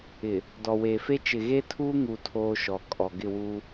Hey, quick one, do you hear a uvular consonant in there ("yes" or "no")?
no